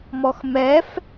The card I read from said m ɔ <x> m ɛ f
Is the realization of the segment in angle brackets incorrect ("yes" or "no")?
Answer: no